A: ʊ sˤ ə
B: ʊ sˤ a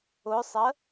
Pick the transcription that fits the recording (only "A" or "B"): A